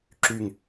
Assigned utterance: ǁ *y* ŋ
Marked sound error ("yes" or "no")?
no